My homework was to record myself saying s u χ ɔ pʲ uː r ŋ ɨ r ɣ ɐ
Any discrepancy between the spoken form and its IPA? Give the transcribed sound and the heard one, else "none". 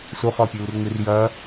ɣ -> j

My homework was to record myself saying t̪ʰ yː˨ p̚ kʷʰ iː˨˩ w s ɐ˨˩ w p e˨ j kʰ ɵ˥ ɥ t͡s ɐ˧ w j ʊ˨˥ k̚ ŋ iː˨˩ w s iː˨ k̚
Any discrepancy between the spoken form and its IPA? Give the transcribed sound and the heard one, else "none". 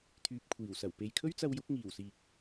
none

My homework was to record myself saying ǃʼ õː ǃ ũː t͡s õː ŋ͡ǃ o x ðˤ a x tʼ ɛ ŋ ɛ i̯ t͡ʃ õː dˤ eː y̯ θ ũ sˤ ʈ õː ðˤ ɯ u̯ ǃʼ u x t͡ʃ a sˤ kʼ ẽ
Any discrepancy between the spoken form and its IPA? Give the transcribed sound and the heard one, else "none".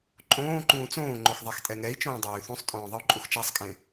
ʈ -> tʼ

